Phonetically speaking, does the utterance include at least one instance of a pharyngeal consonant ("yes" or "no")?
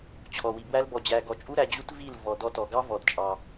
no